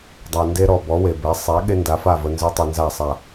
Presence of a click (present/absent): absent